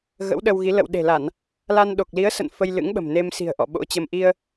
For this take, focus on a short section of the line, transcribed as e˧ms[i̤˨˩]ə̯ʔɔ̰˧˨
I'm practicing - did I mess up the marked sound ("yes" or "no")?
no